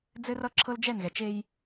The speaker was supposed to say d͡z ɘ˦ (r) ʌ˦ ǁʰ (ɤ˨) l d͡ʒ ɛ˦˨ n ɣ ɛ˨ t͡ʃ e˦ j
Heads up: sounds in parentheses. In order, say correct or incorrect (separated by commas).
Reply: correct, incorrect